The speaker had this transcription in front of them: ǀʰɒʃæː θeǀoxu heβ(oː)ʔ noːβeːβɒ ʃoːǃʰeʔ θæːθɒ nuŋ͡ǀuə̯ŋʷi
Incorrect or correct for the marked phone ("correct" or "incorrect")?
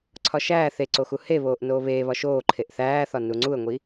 correct